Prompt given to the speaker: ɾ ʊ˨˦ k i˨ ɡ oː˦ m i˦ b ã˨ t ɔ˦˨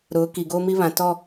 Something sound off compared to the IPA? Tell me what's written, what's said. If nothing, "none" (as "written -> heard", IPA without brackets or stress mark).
b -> β